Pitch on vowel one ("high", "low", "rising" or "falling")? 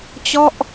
falling